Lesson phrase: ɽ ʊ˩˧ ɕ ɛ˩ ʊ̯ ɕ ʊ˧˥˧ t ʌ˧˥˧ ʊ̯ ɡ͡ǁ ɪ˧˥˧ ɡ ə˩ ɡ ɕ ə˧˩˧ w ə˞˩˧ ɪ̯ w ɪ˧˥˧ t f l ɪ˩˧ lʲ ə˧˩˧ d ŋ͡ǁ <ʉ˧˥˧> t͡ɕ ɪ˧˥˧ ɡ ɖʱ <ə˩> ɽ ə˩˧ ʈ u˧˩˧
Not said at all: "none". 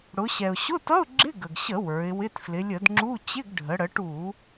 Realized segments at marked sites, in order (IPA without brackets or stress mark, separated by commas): u˧˥˧, ə˩˧